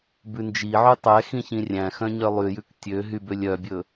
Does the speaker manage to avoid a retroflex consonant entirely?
yes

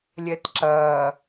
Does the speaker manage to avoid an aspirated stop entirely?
yes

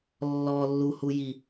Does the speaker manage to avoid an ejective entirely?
yes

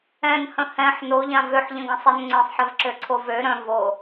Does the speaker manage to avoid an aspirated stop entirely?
no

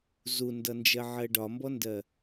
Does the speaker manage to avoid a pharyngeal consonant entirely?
no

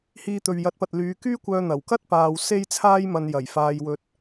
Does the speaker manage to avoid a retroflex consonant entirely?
yes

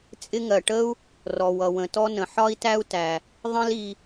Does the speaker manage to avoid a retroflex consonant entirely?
no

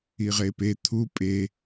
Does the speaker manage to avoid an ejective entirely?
no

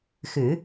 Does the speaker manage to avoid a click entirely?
yes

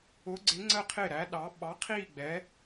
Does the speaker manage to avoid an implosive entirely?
no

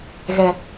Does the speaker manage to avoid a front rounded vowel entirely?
yes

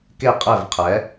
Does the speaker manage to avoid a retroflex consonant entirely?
yes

